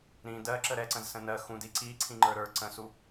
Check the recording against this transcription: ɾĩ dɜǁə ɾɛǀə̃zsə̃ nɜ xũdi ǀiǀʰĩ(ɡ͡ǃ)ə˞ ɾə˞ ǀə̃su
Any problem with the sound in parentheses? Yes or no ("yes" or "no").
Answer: yes